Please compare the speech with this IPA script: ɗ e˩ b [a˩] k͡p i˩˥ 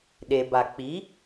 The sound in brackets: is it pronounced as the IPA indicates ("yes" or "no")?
yes